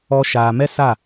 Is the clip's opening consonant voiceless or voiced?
voiceless